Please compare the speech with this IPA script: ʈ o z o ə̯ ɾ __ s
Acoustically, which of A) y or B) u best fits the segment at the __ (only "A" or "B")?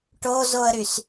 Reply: A